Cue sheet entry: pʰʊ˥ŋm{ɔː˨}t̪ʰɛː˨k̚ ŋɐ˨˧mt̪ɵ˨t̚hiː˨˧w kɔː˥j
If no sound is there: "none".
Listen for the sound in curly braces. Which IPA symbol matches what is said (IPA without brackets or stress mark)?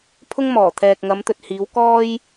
ɔː˨˩